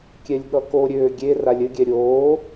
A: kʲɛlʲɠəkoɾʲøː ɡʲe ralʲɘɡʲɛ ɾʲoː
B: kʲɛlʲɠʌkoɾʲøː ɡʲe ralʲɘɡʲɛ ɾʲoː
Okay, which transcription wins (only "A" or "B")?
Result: B